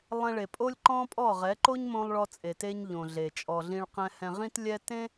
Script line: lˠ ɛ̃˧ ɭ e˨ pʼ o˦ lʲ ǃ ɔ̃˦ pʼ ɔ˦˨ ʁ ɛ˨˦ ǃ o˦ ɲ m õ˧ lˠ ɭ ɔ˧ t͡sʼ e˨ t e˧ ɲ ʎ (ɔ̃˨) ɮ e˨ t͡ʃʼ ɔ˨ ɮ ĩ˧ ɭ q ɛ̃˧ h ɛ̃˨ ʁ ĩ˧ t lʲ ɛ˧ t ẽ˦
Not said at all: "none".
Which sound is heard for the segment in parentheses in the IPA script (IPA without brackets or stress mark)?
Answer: õ˨